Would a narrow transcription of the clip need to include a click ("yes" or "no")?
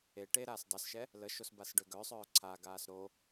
yes